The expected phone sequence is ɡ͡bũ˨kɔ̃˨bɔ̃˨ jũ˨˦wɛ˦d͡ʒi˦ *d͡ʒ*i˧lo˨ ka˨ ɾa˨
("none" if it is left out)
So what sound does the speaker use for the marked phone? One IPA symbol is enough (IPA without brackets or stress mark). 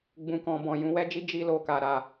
d͡ʒ